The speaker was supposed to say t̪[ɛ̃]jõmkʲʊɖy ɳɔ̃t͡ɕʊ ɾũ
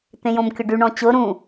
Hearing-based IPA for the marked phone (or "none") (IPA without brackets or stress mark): ẽ